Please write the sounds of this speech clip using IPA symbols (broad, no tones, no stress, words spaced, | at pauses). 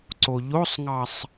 ǀoʎosˤŋɑsˤ